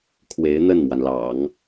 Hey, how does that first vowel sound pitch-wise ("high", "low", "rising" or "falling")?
rising